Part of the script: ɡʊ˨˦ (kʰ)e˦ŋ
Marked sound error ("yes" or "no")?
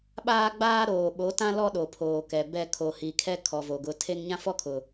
yes